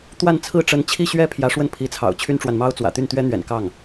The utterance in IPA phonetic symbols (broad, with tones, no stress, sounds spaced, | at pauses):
t̪ w a˥˧ n t͡sʰ ɹ̩˥˩ ʈ͡ʂ ə˧˥ n t͡ɕʰ i˥˩ ɕ ɥ ɛ˥ pʰ j ä˧˥ ʂ w ə˥˩ n pʰ i˧˥ t͡sʰ ɑ̰˨˩ ʊ̯ t͡ɕʰ y˥ n ʈ͡ʂ w a˨ n m ɑ˥ ʊ̯ t͡s w ä̰˨˩ t̪ y˥˩ n t̪ ɥ ɛ˥ n̪ ɥ ɛ̰˨˩ n k ɑ˥˩ ŋ